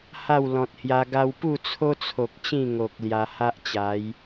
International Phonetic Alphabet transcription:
h a˥˧ w l ɔ̃˨ t̚ h j a˧ ɡ a˦ w p u˥˧ t͡sʰ o˦ t͡sʰ o˨ k̚ t͡ɕ ĩ˥˧ ŋ o˨ k̚ l j a˧ h a˦ ʔ t͡ɕ a˨˦ j

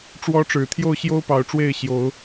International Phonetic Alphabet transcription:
ʈ͡ʂ w ɔ˨˦ ʈ͡ʂ ɻ̩˨˩ t̪ʰ j o˥˨ ʊ̯ ɕ j o˦ ʊ̯ p ɑ˨˩ ʊ̯ ʈ͡ʂ w e˥˨ ɪ̯ ɕ j o˨˦ ʊ̯

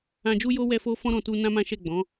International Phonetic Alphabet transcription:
ã˧ d͡ʒ u˦ j o˦ w ɛ˦ f o˦ f ɔ̃˦ ɾ ɔ̃˧ t u˧ n ã˦ m ã˦ ʃ ɛ˦˨ ɡ͡b ɔ̃˨˦

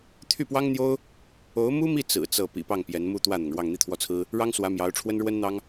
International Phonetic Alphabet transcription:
t̪ʰ y˥˩ p w ɑ˥ ŋ n̪ j o˥ ʊ̯ | o˧˥ ʊ̯ m u˥ m i˥˩ t͡s ɹ̩˨˩ t͡s ɤ˥˩ p ḭ˨˩ p ɑ˥˩ ŋ p j ɛ˧˥ n m u˥˧ t̪ w ä˥˩ n̪ ʊ˩ ŋ ɻ w ɑ˥˧ ŋ n̪ i˥˧ t̪ʰ w ɔ˥˩ t͡sʰ ɹ̩˥ | ɻ ɑ˥ ŋ s w ä˧˥ m j ɑ˧˥ ʊ̯ ʈ͡ʂʰ w ə˥ n ɻ w ə˥ n n̪ ɑ˥ ŋ

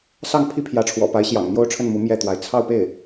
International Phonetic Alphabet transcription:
s ɑ˥˩ ŋ pʰ i˥ pʰ j ä˧˥ ʈ͡ʂʰ w ɔ̰˨˩ p a˧˥ ɪ̯ ɕ j ɑ̰˨˩ ŋ n̪ j o˥˧ ʊ̯ ʈ͡ʂʰ ə˥˩ n m u˧˥ m j ɛ˥˩ t̪ w a˧˥ ɪ̯ t͡sʰ ɑ˥˧ ʊ̯ p e˥˩ ɪ̯

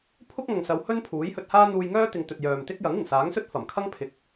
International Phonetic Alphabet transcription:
pʰ ʊ˥ k̚ ŋ ɐ˨ ŋ s ɐ˨˧ w h ɵ˥ n pʰ uː˨˥ j h ɵ˧ t̚ h aː˥ n̪ uː˧ j ŋ œː˥ t̪ ɪ˨ ŋ t̪ ɵ˨ t̚ j œː˨ m t̪ ɪ˥ k̚ j ɐ˨˥ ŋ ɪ˨˩ ŋ s aː˨˥ ŋ s ɵ˥ t̚ f ɐ˨˩ m kʰ ɐ˥ ŋ pʰ ɪ˨ k̚

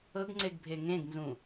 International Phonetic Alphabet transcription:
ɤ ɡ ŋ͡ǀ e ɡ bʱ e ŋ ẽ ɡ n z ũ

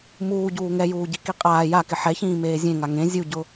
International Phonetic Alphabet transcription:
m uː ɟ uː ŋ ɛ j uː ɟ i k i qʼ aː j a k ɪ ħ ɛ ç ĩː m eː zʲ ẽ ŋ a ŋ ẽ zʲ u ɟ ʊ

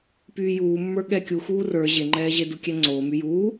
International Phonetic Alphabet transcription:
p yː j uː mː ə˞ ɠ ɛ kʲ u x uː r ə˞ ʑ e ŋ͡ǃ ɛː ʑ e d u kʲ ɛ ŋ͡ǀ oː m y j uː

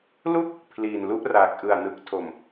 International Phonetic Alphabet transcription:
l u˥˩ k̚ | pʰ l iː˨˩ n l u˥˩ ʔ r aː˨˩ k̚ ʔ ɯ˨˩ a̯ n ɯ˨˩ k̚ tʰ o˨˩ m

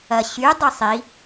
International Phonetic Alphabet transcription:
ɐ ɕ y dˤ ʊ sˤ i

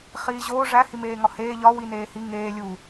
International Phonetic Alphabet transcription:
χ iː ʑ oː ʐ æ h i m eː ŋ ɒ h eː ʎ ɒ w i n eː h i ŋ eː lʲ u

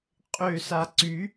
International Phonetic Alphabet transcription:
qʼ ø s a ǀ y

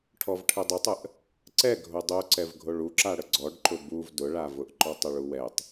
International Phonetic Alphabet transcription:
ʈʰ ɔ v ʈʰ ə dˤ ə tˤ ə ʔ | ǀ ɛ ɡʱ o dˤ o ǀ ɛ v ɡʱ o ɭ u ǁ a ɽ ə ɡ͡ǀ ɔ ɖ ǃ ʊ b u v d ʊ ɭ a v ʊ ʔ ǃ ɔ tˤ ʊ ɭ u w ɛ tˤ

